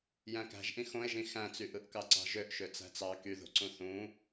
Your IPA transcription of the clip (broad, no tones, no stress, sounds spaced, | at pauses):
j æ̃ k æ̤ ʒ ʔ ĩ x õ e̯ ʒ ĩ x æ̃ t͡s y ʔ ɯ ʔ k ɑ ǀ ɑ̤ ʒ ø ʔ ʃ ø t͡s æ̤ t͡s ɑ k y ð o̤ ǀ ũ θ ũ